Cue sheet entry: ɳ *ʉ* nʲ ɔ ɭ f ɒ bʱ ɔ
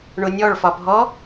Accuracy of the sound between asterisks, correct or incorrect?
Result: incorrect